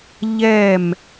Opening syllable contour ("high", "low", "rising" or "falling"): falling